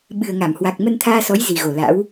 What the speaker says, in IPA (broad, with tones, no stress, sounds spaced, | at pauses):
ɓ ɨ˨˩ ə̯ ŋ a˧˩ m h w a˨˩ k̚ m ə˧ n t̪ʰ aː˧ s ɔ˨˦ j z i˨˩ ɣ o˨˩ l a̰˧˥ w